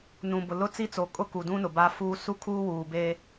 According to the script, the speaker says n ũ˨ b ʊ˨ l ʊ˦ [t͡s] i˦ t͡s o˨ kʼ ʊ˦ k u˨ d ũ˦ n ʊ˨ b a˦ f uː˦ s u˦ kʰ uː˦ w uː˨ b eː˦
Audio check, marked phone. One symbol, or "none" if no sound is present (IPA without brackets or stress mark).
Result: t͡s